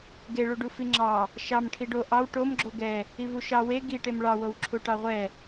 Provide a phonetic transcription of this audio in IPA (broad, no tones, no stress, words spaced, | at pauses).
ɡeɭuɖu fiŋ͡ǁɑ | ʃɑm ʈʰiɖo ʔɑw ʈomɡ͡ǁo ɡɛ | ivuʃɑ we ɡiʈem ɭɑwow ǁʰuʈɑʁʷɛ